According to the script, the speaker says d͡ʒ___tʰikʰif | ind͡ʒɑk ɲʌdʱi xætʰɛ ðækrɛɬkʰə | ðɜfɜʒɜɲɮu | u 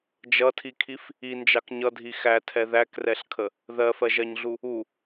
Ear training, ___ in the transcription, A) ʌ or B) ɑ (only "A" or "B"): A